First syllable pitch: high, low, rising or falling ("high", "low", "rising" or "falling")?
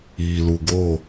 low